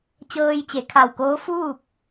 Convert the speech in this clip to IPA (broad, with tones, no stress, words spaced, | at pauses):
t͡ɕɤː˧jt͡ɕe˩˧kʰa˧˩wkoː˧˥ fuː˥˨p̚